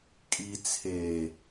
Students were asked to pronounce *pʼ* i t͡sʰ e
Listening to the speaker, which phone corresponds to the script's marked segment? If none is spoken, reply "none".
kʼ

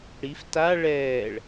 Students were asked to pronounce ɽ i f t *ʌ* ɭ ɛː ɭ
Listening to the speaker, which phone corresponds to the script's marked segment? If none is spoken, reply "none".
a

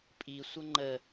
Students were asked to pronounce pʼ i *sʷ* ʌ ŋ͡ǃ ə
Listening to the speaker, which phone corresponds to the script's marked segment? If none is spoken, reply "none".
sʷ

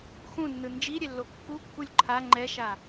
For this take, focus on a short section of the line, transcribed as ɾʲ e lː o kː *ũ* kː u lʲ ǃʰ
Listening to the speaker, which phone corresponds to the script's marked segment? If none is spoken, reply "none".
u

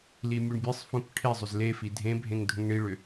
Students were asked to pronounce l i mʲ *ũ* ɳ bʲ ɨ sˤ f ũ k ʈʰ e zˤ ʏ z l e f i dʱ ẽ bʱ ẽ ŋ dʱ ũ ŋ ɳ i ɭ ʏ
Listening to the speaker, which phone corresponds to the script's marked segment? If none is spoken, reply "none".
u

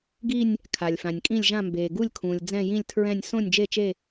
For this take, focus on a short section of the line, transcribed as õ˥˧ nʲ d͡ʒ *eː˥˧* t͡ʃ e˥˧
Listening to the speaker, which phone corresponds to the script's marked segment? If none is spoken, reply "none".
e˥˧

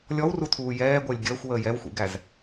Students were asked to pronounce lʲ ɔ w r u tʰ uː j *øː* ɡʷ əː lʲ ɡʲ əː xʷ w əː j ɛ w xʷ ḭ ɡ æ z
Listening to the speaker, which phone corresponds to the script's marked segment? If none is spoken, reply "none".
ɛː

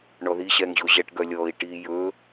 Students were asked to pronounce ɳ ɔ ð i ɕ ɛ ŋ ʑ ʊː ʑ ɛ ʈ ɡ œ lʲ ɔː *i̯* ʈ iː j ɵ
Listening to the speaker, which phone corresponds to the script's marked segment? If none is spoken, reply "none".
i̯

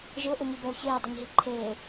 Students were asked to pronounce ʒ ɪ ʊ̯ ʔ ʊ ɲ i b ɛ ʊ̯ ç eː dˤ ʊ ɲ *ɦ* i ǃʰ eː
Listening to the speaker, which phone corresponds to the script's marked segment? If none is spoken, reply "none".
ɦ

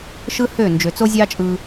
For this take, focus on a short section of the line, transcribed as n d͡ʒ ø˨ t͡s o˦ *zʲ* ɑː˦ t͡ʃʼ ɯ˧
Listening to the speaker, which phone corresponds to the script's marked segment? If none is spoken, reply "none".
zʲ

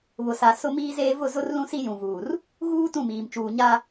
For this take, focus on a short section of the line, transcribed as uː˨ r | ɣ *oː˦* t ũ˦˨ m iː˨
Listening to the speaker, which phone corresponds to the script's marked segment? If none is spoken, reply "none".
uː˦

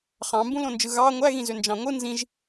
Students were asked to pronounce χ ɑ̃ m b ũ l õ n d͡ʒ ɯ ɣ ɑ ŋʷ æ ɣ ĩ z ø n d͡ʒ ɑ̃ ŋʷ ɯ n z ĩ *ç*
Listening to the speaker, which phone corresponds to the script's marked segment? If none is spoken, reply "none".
ʒ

